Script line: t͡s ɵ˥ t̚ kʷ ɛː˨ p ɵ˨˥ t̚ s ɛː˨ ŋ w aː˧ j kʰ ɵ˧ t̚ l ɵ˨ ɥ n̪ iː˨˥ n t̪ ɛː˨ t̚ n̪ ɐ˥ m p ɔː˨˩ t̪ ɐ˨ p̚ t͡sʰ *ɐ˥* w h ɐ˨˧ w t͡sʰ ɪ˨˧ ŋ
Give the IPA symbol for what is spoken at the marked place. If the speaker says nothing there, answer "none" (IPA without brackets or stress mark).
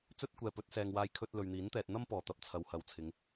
ɐ˨˧